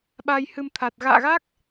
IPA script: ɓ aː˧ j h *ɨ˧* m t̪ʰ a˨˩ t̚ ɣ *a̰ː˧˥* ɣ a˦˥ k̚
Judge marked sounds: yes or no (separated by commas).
yes, no